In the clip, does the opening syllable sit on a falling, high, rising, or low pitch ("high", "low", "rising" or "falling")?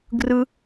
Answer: high